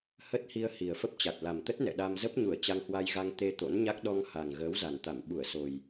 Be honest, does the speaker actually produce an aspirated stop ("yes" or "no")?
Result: no